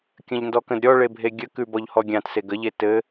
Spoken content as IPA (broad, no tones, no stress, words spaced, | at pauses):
kʲə̃ʎndɔkə̃d ɾʲɔɭe bʱeɡʲəkʉ bɔʎhɔɡʲãt seɡəʎe tɘ